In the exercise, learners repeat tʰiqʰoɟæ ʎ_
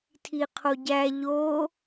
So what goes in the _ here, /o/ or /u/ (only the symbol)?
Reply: o